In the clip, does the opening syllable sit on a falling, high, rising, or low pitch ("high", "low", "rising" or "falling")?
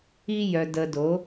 high